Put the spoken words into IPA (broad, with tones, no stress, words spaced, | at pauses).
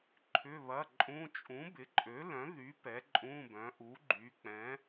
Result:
ǃʰʏ˧˥˧βɐ˧˥˧ǃʼũ˧˥˧ t͡ʃʼũ˨˥bɪ˨˥ǃʼø˨˥ lœ̃˨˥ðy˨˥ pɛ˨˥ǃʼũ˧˥˧bœ̃˨˥ ʔu˨˥ɡ͡ǃy˨˥ k͡pɛ̃˨˥